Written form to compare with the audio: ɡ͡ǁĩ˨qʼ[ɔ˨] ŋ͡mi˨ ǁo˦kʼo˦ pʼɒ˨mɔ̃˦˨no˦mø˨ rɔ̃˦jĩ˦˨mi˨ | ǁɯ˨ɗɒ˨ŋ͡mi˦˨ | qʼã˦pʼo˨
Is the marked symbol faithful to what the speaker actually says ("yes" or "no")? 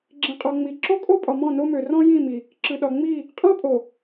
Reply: yes